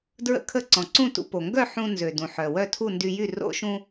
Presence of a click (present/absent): present